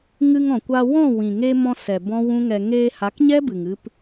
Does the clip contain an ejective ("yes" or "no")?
no